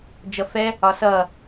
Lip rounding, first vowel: unrounded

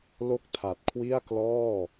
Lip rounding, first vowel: rounded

